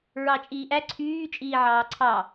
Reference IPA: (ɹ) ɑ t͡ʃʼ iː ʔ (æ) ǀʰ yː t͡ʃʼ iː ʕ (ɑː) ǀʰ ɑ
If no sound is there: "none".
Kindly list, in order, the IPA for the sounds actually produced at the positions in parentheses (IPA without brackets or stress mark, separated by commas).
ɹ, æ, ɑː